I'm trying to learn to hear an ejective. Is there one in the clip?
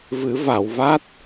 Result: no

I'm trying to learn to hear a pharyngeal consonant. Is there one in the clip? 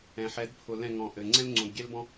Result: yes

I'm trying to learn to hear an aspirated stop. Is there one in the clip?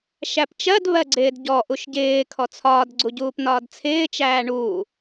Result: yes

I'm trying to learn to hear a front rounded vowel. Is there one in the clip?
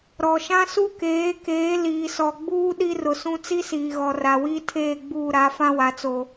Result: no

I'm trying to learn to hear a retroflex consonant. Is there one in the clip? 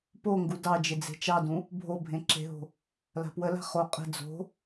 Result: no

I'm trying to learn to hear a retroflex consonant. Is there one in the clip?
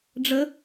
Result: yes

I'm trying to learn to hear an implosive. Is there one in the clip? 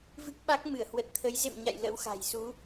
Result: yes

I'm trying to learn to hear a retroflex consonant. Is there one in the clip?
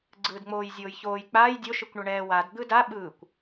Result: yes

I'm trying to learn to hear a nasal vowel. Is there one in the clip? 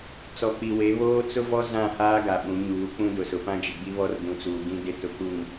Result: yes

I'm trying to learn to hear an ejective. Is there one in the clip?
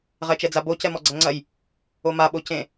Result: no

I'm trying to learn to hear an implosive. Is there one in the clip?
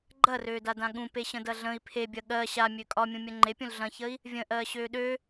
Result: yes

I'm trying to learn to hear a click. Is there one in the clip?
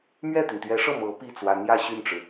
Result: no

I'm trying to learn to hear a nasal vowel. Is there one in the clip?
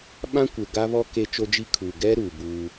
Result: yes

